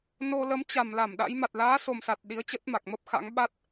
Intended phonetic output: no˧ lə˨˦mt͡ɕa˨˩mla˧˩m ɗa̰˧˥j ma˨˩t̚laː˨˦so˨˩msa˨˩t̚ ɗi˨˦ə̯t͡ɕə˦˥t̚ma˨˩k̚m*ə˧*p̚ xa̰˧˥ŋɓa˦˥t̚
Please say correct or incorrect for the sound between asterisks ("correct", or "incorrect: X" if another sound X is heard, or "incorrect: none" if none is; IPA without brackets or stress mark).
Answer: incorrect: ə˦˥